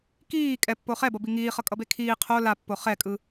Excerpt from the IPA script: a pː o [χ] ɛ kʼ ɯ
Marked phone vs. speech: correct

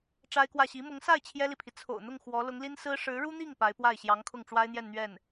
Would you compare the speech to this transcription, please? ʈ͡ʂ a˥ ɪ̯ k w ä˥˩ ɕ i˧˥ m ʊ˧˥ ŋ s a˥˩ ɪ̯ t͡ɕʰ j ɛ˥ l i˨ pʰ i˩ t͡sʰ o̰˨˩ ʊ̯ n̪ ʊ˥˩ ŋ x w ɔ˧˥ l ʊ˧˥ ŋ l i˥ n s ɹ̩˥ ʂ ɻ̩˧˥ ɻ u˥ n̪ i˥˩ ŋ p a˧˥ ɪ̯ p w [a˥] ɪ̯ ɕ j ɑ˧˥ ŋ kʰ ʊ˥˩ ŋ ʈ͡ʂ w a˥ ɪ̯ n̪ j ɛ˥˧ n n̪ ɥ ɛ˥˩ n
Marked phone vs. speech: incorrect: a˥˩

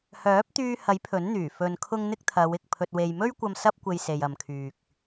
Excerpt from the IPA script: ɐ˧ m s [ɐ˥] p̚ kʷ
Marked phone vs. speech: correct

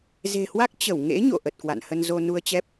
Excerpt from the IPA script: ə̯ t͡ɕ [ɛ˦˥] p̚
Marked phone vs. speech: correct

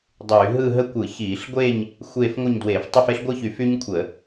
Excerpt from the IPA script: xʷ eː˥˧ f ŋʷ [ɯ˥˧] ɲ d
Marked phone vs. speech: correct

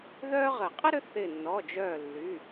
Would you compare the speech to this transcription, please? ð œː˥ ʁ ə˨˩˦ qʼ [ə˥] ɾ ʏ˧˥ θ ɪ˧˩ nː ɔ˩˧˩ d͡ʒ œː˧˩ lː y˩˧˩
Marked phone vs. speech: correct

